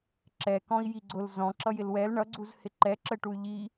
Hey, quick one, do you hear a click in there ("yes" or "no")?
yes